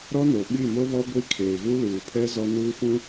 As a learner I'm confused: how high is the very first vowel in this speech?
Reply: mid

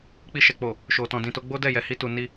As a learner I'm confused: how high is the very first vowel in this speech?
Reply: high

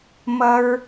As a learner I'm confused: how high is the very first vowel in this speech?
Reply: mid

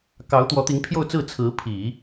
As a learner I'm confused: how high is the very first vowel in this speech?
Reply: low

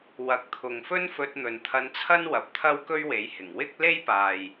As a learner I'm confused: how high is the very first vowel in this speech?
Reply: low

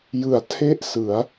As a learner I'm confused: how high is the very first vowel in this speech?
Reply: high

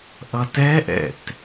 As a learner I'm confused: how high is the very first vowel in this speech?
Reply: mid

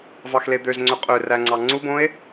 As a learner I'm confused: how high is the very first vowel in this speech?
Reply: low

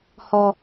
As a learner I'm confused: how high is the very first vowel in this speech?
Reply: mid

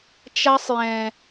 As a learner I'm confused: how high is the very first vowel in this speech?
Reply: low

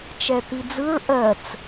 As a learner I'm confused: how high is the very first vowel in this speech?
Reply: mid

